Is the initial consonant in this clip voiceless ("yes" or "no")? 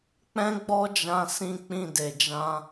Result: yes